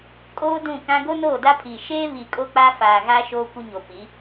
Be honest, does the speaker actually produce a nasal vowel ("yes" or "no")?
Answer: yes